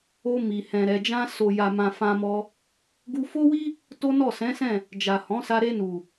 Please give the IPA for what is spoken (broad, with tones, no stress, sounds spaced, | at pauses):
o˧ m i˨ h ɛ̃˨ ɾ ɛ˨ d͡ʒ ã˧ s o˨ j a˨ m ã˨ f ã˧ m ɔ˧ | ɡ u˧ f o˦ w i˦ | t o˦ n ɔ˦˨ s ɛ̃˨˦ s ɛ̃˦˨ | d͡ʒ a˨ h ɔ̃˨˦ s a˧ ɾ e˧ n u˨